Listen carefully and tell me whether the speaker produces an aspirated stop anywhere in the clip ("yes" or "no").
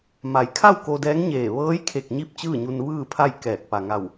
yes